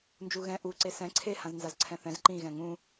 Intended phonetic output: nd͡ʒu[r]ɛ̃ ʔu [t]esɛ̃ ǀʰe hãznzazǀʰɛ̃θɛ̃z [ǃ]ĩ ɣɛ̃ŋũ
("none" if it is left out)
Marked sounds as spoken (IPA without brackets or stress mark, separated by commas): ɣ, ǀ, ǃ